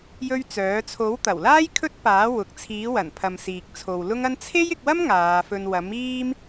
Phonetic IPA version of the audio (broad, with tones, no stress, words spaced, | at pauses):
jɵ˥ɥt͡sœː˨˥ t͡sʰo˨˥wt̪ɐ˨˩wlaː˥j kʰɵ˥t̚paː˨˥ wʊ˨˥k̚ t͡sʰiː˨˥wɐ˨˩npʰɐ˨m siː˨k̚t͡sʰo˨wlʊ˥ŋɐ˥n t͡sʰe˥jɪ˧k̚wɐ˥m ŋaː˨˧fɵ˧n wɐ˨˥miː˥m